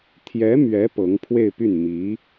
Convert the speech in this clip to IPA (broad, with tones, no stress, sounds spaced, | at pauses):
t̪ʰ j ɛ˧˥ m ɥ ɛ˧˥ p ɤ˧˥ ŋ pʰ w e˥˧ ɪ̯ p y˥˩ n m i˧˥